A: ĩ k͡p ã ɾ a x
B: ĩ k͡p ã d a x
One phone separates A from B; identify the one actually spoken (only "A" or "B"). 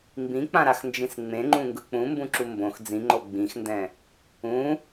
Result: A